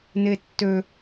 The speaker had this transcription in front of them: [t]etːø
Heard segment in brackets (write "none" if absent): n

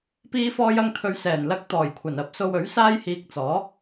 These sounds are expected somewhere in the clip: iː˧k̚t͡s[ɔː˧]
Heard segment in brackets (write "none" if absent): ɔː˨˥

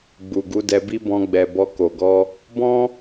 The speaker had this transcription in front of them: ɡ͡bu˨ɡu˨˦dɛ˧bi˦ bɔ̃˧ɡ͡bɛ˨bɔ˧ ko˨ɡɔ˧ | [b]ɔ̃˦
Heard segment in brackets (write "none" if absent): b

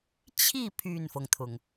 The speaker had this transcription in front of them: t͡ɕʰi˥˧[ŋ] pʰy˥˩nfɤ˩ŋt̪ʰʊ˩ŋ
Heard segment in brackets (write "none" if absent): none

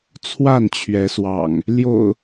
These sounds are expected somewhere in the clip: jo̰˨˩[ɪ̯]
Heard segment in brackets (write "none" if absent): ʊ̯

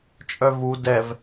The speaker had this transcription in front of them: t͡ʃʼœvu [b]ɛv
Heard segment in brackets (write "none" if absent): d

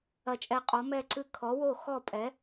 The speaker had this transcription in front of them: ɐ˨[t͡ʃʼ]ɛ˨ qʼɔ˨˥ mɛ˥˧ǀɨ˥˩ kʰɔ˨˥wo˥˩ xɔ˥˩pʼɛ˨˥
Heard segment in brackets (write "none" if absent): t͡ʃʼ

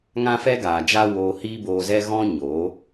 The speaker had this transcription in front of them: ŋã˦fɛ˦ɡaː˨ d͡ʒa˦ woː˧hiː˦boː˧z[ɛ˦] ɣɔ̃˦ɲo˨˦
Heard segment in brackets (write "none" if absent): ɛ˦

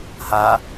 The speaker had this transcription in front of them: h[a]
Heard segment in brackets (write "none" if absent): a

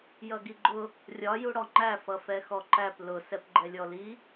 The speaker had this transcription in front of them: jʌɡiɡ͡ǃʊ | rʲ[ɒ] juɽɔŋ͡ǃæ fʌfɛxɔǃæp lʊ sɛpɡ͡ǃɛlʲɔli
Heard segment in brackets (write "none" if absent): ɒ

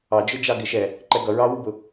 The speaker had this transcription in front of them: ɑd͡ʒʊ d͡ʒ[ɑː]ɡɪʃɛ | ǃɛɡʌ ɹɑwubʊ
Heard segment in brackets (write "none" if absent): ɑ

